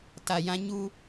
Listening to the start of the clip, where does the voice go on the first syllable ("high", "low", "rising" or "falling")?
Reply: low